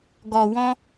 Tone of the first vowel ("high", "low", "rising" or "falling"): low